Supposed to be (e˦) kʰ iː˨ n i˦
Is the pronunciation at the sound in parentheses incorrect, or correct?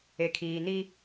incorrect